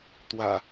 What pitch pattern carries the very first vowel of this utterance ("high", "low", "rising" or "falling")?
low